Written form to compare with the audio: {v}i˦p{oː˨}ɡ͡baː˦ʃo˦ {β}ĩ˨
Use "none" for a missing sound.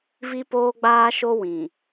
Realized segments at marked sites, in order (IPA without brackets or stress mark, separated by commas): v, oː˦, w